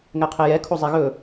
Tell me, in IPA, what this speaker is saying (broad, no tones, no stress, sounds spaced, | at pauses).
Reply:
ŋ ɛ qʰ e j ɛ kʰ o zˤ e ɣ ɵ